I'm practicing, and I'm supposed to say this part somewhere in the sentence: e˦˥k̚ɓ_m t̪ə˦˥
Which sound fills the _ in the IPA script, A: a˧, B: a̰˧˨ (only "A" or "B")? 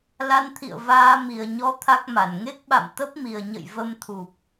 B